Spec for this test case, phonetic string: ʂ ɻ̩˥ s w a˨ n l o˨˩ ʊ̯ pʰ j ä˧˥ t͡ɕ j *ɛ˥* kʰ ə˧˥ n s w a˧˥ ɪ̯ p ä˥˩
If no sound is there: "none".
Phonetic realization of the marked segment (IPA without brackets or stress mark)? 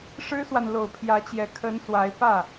ɛ˧˥